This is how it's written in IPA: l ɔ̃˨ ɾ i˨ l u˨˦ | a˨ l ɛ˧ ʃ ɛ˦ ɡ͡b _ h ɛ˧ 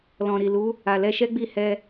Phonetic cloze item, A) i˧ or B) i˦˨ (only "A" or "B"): B